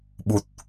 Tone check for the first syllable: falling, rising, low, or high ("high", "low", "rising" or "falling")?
low